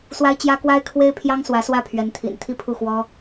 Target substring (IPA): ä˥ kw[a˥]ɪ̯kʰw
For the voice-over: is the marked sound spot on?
yes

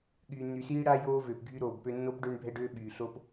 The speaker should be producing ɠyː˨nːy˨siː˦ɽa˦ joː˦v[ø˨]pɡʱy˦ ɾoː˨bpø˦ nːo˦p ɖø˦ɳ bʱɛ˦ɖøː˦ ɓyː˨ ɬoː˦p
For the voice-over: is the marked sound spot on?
yes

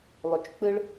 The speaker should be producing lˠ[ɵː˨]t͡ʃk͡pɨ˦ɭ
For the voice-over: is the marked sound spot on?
no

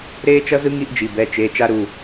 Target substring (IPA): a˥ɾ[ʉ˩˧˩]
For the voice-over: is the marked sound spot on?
no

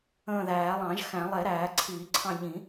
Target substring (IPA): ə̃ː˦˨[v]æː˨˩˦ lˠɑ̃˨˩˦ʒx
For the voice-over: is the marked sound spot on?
no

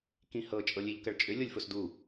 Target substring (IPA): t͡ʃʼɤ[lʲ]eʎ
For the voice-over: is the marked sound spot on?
yes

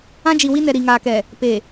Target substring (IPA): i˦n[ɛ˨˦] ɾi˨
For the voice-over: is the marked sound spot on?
no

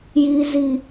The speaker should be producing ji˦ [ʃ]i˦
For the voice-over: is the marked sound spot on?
no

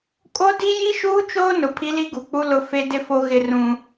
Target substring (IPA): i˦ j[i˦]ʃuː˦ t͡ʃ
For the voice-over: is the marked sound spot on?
yes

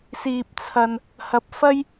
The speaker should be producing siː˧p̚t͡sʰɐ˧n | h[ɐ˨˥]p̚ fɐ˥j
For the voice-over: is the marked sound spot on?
no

